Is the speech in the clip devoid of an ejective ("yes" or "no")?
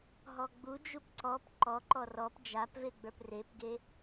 yes